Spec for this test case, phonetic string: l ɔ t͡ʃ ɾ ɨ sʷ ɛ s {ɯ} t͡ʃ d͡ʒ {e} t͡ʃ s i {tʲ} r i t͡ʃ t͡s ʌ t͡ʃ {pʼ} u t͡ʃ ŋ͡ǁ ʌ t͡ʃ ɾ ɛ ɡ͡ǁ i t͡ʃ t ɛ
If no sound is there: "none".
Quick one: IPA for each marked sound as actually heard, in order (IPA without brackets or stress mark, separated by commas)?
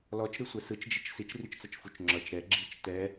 ɯ, i, t͡ʃ, f